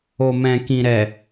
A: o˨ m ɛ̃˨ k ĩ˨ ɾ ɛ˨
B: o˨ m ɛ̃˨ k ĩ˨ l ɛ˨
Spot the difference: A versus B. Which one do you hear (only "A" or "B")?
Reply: A